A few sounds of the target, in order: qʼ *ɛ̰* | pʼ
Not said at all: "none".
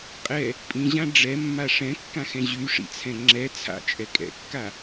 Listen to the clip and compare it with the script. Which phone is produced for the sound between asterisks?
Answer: ɛ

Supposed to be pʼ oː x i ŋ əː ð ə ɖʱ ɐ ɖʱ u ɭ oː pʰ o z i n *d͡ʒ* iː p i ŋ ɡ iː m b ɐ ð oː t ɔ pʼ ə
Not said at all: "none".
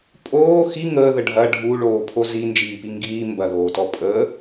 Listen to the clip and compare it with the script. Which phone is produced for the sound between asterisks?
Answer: d͡ʒ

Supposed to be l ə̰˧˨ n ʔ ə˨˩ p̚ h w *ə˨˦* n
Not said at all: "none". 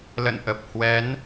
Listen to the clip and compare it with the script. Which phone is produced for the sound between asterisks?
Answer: ɛ˨˦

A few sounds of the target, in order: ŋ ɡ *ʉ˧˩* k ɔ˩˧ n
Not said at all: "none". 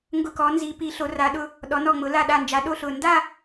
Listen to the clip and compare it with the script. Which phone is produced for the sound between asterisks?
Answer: ʊ˧˩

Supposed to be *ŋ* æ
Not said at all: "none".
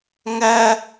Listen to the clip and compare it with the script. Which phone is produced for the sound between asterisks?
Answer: ŋ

